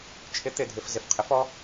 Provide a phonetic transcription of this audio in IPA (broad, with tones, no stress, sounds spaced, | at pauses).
t͡ʃʰ ɪ˨˥ t̪ ɪ˩˧˩ dʱ ɪ˧˩˧ f z ɪ˩˧˩ f qʰ ɪ˨˥ f ɔ˨˥